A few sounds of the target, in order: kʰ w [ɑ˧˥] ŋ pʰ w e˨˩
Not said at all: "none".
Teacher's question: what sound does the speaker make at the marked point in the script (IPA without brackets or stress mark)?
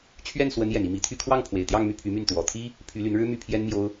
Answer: ɑ˥˩